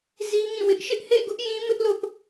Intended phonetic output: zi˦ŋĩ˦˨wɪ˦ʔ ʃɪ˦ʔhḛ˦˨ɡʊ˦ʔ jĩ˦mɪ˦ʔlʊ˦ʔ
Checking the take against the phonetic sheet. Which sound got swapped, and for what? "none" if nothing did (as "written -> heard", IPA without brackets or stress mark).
none